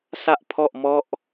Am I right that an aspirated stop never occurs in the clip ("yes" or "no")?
no